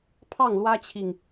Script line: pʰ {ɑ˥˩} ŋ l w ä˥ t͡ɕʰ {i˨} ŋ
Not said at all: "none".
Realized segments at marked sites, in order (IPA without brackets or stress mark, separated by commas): ɑ˥˩, i˨